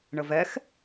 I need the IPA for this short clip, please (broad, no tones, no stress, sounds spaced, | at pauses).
ɳ ə v ɛ x